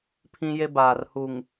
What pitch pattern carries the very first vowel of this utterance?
high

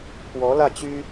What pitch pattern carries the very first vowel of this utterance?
rising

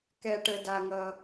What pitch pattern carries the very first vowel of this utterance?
low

